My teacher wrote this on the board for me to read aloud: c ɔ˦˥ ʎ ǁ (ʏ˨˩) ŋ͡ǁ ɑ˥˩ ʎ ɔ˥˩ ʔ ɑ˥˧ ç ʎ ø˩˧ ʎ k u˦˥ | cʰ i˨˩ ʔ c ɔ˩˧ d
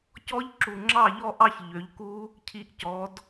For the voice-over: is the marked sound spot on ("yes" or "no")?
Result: no